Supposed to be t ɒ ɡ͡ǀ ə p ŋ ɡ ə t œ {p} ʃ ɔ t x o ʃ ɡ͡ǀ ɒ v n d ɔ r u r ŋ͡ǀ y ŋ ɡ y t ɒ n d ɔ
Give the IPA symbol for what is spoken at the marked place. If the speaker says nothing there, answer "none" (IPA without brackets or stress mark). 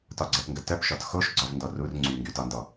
p